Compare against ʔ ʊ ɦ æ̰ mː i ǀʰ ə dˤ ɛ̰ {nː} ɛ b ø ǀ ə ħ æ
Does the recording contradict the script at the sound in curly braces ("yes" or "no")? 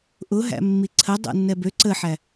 no